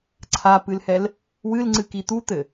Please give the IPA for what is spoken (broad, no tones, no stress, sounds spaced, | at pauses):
ǀʰ a p ɨ l h ɛ l | w ɨ l ŋ͡ǀ ɨ k i t̪ u t̪ ɘ